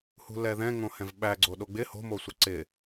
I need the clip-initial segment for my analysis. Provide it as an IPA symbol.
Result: h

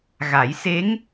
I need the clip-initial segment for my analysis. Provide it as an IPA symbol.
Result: ɣ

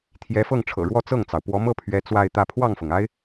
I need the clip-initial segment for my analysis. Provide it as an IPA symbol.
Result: t̪ʰ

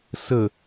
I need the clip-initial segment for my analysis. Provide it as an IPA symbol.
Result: s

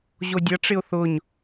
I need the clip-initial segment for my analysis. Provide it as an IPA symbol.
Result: ʑ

